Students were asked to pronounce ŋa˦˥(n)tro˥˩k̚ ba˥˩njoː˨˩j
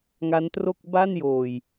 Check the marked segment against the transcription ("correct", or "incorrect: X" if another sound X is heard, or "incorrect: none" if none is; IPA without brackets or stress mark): correct